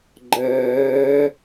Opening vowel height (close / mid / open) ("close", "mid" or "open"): mid